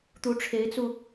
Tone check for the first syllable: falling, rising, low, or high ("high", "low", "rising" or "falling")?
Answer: rising